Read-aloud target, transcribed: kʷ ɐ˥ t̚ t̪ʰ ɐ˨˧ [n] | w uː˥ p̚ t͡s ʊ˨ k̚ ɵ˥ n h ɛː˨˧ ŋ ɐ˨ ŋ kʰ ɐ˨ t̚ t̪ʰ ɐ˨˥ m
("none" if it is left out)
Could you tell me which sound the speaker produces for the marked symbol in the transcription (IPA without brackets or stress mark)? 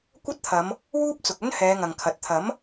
m